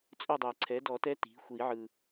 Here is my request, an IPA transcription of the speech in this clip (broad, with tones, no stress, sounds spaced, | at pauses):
t͡sʼ ɵ˥˧ dˤ ɛ˨˩ ǀʰ ɛ˩˥ d ɔ˨˩˦ t ɛ˧˥ t i̤˩˥ xʷ i˨˩˦ ʕ ɯ˨˩